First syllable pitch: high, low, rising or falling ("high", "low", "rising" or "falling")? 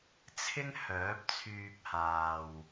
high